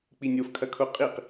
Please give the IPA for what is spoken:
k͡p i nʲ o f kʰ ɐ kʰ o qʼ i q

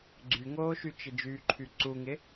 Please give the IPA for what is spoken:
ɡ͡ǀ y ŋ oː ʃ y t͡ʃ ɪ d͡ʒ yː ǃʰ y ǀ u ŋ ɪ

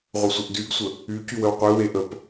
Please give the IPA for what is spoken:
ʁʷ ə sʷ ə ʔ d y ɡ sʷ ə | y c y w ə w qʷ e w e ʔ ə p

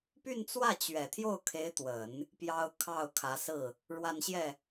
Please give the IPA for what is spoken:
p y˥˧ n t͡s w ä˥˩ t͡ɕ ɥ ɛ˨˩ t̪ʰ j o˥˩ ʊ̯ kʰ e˧˥ ɪ̯ t̪ w ə˨˩˦ n | p j ɑ˥ ʊ̯ kʰ ɑ˥˩ ʊ̯ kʰ ä˧˥ s ɹ̩˥˩ | ɻ w a˥˧ n ɕ j ɛ˥˩

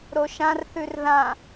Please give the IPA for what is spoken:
ɾ o ʃ ã r θ ʉ r ð ã

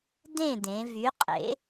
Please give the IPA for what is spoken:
d ẽ˥˨ d ẽ˩˧ v y˩˧ qʼ ḛ˩˧

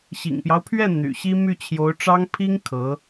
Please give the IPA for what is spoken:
ɕ ḭ˨˩ ŋ p j ɑ˦ ʊ̯ pʰ ɥ ɛ˥˩ n̪ y̰˨˩ ɕ i˥ m y˥˩ t͡ɕʰ j o˧˥ ʊ̯ ʈ͡ʂ ɑ˥ ŋ pʰ i˥ ŋ kʰ ɤ˧˥

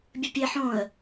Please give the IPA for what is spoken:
bʲ ɘ pʲ e ħ õ ə̯

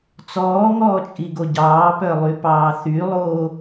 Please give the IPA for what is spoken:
t͡s ɔː ŋ ɔː t͡ʃʼ i ɡ o ɟ ɑː p œ lˠ y p ɑː θ y lˠ oː

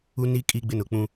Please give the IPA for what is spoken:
u˦ n i˦ kʼ i˦ ɡ͡b ɪ˦ n ʊ˨ k͡p ũ˦

